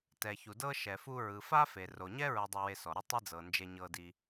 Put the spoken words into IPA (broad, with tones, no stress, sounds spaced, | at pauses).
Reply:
t ɛ˩ ç u˩ d ɤ˥ ʃ ɛ˩ f u˧ ɹ ɯ˩ f a˥ f e˩ r o˩ ɲ ɛ˥ ɹ ɤ˧ dˤ ɯ˧ w e˧ s ɔ˩ ɾ ɯ˧ tˤ i˧ d͡z ɤ˩ n d͡ʒ e˧ ɲ ɤ˧ d i˧